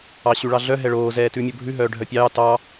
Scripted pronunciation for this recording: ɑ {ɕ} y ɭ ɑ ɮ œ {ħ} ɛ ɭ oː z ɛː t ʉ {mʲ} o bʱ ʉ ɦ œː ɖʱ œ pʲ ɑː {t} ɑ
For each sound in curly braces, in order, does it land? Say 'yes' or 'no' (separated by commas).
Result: yes, no, yes, yes